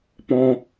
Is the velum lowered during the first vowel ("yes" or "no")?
yes